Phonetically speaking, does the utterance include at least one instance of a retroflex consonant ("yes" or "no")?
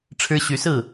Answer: yes